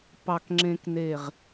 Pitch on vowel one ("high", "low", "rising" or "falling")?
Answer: low